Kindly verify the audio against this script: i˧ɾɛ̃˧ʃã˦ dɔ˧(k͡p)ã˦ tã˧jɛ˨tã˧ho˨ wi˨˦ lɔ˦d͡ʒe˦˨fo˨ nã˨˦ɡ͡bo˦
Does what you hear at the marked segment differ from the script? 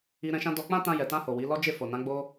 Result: no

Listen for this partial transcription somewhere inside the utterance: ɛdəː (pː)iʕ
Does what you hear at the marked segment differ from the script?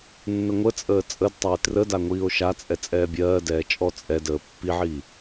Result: no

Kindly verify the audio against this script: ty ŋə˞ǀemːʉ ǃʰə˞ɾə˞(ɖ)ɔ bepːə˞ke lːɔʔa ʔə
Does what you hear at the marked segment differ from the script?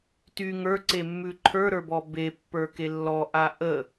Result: yes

